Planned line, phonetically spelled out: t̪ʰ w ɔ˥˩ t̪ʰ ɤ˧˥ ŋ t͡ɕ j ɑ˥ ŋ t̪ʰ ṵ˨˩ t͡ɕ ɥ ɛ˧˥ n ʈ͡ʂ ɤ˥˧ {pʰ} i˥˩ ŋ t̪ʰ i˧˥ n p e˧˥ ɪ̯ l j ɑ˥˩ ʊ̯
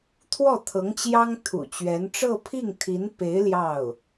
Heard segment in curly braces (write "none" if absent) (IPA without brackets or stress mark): pʰ